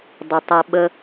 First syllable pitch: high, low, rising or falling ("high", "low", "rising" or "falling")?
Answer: low